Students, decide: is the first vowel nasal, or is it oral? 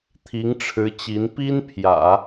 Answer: oral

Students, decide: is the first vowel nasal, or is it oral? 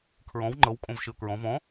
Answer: nasal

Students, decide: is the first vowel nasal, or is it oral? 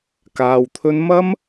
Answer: oral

